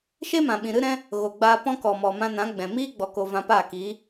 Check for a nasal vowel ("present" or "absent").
present